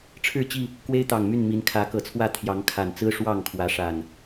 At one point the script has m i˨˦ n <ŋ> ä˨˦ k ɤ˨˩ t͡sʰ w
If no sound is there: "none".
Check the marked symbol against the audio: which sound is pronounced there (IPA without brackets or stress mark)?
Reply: kʰ